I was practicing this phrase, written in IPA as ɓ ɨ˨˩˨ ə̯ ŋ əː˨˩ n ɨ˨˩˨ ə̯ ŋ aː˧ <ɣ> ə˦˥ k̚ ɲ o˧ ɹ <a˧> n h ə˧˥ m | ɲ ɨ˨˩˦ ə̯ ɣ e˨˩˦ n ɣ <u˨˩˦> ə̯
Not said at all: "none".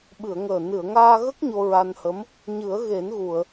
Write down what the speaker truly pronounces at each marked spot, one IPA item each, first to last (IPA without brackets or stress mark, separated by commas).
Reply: ɣ, a˧, u˨˩˨